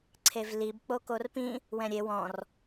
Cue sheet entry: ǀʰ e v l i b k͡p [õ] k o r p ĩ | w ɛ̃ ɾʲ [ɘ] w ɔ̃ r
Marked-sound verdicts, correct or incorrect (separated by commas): incorrect, incorrect